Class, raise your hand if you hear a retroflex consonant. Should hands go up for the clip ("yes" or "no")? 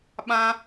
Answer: no